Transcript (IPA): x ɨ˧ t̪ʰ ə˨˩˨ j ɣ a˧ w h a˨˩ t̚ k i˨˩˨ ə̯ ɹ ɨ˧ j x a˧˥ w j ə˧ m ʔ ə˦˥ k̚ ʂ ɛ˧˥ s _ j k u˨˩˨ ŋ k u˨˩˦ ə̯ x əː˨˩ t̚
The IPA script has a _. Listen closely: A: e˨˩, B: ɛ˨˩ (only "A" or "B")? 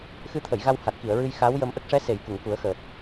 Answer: A